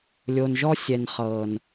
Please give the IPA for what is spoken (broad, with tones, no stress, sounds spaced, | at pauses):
lʲ o˨ n ʒ ɔ˦ sʲ ɛ˨ n χ ɤ˨ n